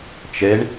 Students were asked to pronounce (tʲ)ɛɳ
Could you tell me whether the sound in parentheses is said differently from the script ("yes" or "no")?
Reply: yes